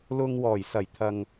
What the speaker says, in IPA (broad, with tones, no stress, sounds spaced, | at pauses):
l ʊ˨ ŋ w ɔː˨˩ j s ɐ˨˩ j t̪ʰ ɐ˨ ŋ